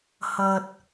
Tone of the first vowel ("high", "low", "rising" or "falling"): high